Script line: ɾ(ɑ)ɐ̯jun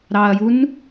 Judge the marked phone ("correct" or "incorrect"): correct